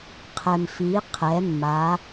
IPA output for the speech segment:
qʰ ɛ˩ m f i˩˧ qʰ ɛ˩˧ mː a˩˧

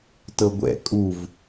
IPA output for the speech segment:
t ɤ ɡʷ ɛ̰ kʼ u v

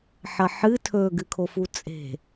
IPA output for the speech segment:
ħ ɐ ħ ɨ tʰ ɵ ɡ ɨ kʰ o f u t͡sʼ e̤

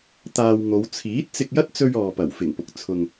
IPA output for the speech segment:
t̪ aː˧ w ŋ o˨˧ w t͡sʰ iː˨˥ t̚ t͡s ɪ˧ k̚ j ɐ˥ t̚ t͡s ɵ˧ ɥ ɔː˨ p ɐ˨˩ w f ɪ˨˩ ŋ p ʊ˨˥ k̚ t͡sʰ ʊ˧ ŋ

